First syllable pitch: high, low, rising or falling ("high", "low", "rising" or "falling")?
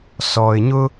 low